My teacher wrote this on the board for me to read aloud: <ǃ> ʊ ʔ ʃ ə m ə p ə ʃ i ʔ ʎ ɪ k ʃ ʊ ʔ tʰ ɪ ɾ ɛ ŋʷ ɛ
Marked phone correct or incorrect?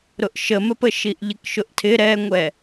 incorrect